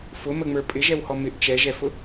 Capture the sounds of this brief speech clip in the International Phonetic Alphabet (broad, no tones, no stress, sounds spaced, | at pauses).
f ʊ m ə ŋ͡m ə˞ pʼ ɪ ʒ ɛ w h ɔ m ɪ ʔ t͡ʃ ɛ ʒ ɛ f ʊ